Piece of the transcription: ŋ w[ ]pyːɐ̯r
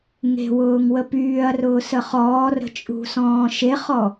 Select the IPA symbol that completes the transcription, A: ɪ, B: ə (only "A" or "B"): B